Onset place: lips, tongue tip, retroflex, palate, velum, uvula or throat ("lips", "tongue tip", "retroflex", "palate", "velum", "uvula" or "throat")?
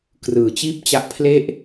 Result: velum